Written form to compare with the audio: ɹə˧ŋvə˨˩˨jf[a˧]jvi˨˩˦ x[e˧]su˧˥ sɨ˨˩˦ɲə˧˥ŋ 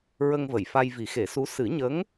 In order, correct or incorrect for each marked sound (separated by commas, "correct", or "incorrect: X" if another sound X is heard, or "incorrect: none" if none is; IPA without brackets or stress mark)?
correct, incorrect: e˨˩˦